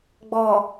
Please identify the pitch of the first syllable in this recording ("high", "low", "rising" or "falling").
low